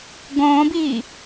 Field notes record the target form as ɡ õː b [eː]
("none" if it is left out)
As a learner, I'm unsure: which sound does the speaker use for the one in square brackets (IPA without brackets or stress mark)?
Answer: iː